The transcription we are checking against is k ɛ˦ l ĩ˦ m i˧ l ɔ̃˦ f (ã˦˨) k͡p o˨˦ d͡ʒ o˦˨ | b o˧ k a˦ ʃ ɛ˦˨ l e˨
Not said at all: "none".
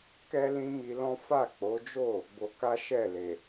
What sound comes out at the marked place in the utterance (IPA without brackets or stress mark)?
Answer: a˦˨